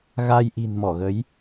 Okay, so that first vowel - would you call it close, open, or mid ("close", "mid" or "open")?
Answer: open